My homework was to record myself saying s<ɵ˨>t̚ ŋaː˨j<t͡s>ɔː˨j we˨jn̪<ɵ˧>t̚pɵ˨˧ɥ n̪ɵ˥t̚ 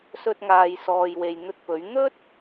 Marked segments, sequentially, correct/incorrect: incorrect: ɵ˧, incorrect: s, correct

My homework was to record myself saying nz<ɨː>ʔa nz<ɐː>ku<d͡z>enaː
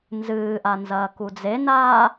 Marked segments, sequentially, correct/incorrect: correct, correct, correct

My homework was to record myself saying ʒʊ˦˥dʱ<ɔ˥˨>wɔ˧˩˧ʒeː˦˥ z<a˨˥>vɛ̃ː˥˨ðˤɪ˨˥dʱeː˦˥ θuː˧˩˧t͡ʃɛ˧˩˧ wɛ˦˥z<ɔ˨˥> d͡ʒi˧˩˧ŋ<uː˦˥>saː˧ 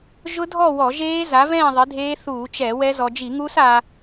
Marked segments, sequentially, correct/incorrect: correct, correct, incorrect: ɔ˧, correct

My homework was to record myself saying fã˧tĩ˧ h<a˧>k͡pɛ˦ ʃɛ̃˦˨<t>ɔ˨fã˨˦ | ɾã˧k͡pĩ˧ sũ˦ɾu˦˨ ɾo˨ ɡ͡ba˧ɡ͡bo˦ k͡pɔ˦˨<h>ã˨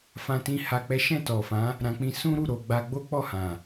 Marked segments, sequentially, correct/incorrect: correct, correct, correct

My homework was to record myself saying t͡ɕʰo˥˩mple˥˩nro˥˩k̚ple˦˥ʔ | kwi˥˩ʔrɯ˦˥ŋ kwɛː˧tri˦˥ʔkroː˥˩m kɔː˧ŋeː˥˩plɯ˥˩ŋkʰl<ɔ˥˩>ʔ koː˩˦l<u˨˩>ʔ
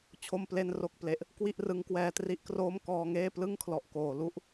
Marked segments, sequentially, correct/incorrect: incorrect: ɔ˨˩, incorrect: u˦˥

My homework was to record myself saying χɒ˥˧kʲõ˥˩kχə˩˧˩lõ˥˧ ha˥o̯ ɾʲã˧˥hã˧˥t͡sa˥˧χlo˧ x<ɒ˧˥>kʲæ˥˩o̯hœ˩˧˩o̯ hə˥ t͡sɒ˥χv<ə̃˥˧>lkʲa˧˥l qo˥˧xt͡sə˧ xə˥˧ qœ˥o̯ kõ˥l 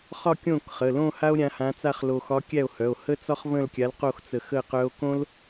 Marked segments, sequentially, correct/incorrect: correct, correct

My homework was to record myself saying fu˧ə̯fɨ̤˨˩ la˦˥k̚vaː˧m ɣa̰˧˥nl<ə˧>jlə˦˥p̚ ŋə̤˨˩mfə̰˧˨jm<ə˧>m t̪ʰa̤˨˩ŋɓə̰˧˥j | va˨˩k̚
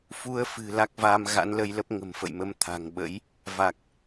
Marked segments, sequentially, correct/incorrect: correct, correct

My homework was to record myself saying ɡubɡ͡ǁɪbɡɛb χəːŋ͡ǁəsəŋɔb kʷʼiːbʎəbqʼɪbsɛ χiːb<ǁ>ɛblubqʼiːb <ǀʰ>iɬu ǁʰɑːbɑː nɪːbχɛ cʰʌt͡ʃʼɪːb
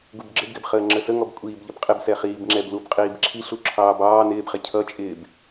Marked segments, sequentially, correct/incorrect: incorrect: ŋ͡ǁ, incorrect: ǁʰ

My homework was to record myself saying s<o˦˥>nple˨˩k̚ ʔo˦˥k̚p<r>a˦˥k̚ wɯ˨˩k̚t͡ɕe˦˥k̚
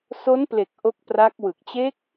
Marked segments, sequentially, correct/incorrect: correct, correct

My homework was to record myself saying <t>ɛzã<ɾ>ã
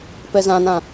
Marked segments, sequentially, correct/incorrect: incorrect: p, incorrect: n

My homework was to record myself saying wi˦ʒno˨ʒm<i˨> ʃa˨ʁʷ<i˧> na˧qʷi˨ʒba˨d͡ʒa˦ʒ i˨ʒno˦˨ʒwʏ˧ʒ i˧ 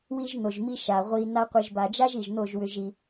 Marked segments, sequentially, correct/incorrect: incorrect: i˦, correct

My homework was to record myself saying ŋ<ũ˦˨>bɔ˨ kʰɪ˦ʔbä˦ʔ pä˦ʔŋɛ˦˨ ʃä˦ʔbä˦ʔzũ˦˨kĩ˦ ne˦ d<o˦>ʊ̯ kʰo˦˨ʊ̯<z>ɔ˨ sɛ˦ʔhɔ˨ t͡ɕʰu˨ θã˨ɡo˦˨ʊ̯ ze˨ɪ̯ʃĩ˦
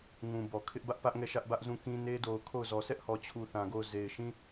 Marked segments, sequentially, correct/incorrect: incorrect: ũ˨, incorrect: o˨, correct

